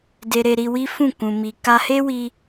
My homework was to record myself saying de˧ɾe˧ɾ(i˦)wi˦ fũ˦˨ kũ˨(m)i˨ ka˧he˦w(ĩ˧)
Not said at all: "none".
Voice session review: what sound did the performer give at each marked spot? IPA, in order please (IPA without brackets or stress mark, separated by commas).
i˧, m, i˧